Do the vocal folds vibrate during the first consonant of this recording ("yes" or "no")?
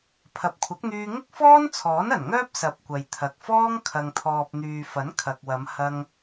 no